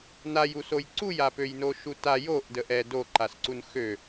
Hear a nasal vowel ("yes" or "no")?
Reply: no